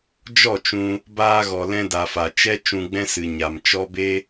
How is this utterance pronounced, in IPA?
d͡ʒ ɔ˦˨ t͡ʃ ũ˧ | b aː˧ ɣ ɔ˨ l ɛ̃˧ d a˨ f a˨ t͡ʃ ɛ˦ t͡ʃ ũ˧ ɡ͡b ɛ̃˦ s ɨ˨ ɲ a˨ m t͡ʃ ɔ˦ b e˦

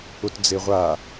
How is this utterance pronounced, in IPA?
ʊ t d͡z e ʁʷ a

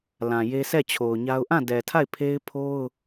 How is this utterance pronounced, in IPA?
l ã˨ j e˦ sʰ ɛ˦˨ t͡ɕʰ o˨ ʊ̯ ɲ a˦ ʊ̯ ʔ ã˦˨ d ɛ˨ tʰ a˦˨ ɪ̯ pʰ e˦ ɪ̯ pʰ o˦ ʊ̯

